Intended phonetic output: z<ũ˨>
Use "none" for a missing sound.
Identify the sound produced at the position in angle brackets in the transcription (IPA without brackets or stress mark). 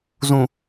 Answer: ũ˨